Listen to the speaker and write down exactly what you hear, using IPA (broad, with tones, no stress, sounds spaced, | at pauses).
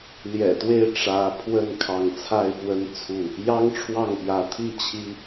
l j ɛ̰˨˩ t̪ w e˥˨ ɪ̯ ʈ͡ʂ ä˨˦ pʰ w ə˥˨ n kʰ ɑ˨˦ ŋ t͡sʰ a˥˨ ɪ̯ f w ə˦ n t͡sʰ u˥˨ | j ɑ˦ ŋ ʈ͡ʂʰ w ɑ˥˨ ŋ p j ä˨˦ t̪ʰ i˥˨ t͡ɕʰ i˦